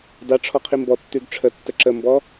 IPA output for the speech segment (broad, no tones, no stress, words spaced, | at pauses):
daʈ͡ʂʰɔ qʰimbɔtːʉɡ ʈ͡ʂʰətːə ǁəmbɔ